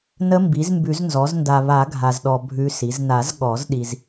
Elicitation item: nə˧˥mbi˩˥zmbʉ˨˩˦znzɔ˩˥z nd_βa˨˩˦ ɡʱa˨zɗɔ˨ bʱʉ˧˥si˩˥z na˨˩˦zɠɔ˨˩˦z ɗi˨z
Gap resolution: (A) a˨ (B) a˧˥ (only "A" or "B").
A